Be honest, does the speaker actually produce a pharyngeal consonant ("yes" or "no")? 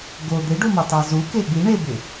no